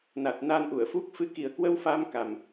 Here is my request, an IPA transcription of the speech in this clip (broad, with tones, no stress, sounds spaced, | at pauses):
n a˨˩ t̚ n a˧ n ʔ u˧˩ ə̯ f u˦˥ k̚ f ɨ˨˦ k i˨˩ ə̯ k w ə˧ w f a˧ m k a˨˩ m